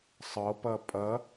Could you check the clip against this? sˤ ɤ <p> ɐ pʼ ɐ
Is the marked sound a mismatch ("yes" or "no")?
no